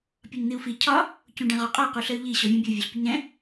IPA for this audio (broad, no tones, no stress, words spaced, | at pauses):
pʲɒɲn̪iu̯fi cʰɒ | cũɖɛ̃ʁɔqʼɒ quɬəy̯ʎi ɕɔvʲũbʲu vʲoɬpʲəɲɾɛ̃